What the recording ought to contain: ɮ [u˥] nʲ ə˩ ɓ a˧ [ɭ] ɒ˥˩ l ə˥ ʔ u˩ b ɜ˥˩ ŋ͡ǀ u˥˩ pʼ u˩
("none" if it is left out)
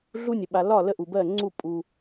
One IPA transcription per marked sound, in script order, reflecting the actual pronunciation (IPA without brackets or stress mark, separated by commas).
u˥, l